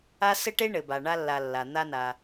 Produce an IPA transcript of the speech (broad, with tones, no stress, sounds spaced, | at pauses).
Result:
a˥ s ɘ˥ ʈ e˥ ɳ ɘ˩ b a˩ ɳ a˥ lː a˨ lː a˩ n̪ a˥ n a˨